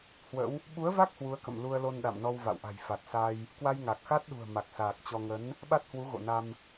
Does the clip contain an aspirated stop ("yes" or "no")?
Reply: no